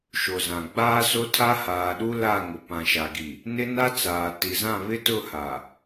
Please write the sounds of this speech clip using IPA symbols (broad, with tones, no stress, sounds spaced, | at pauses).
ʃ o˨ z ã˨ ɡ͡b aː˦ s o˦ tʰ a˦ h aː˨ ɗ u˦ l a˦˨ ŋ ʊ˨ p ã˨ ʃ a˨ ɡ i˨ | n ɪ˦ n a˦ t͡s aː˨ t i˨ z ã˦˨ β ɪ˦ t ʊ˦˨ h a˨